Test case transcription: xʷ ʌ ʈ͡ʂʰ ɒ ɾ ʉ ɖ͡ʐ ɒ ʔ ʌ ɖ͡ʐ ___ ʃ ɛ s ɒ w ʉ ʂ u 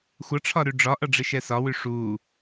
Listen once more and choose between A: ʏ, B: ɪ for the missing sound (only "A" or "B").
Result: B